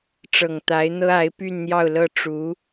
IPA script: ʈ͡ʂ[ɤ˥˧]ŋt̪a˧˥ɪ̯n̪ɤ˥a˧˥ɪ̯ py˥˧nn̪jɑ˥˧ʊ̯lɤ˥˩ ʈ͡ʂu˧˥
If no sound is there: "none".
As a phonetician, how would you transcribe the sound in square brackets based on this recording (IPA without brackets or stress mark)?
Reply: ɤ˨˩